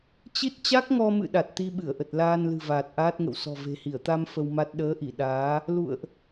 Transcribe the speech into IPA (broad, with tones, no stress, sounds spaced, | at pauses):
t͡ɕ i˦˥ t̚ t͡ɕ a˦˥ k̚ ŋ ɔ˧ m ɨ̰˧˨ ɗ a˨˩ t̚ t̪ i˧ ɓ ɨ˧˩ ə̯ ʔ ə˨˩ t̚ l aː˧ n l ɨ̤˨˩ v aː˨˩ t̚ ʔ aː˦˥ t̚ ŋ ə̰˧˨ w s ɔ̤˨˩ v e̤˨˩ h i˧˩ ə̯ t̪ a˧ m f ə˧ w m a˦˥ t̚ ɗ əː˨˦ ʔ i˧˩ ɗ aː˨˦ | l ṵ˧˨ ə̯ ʔ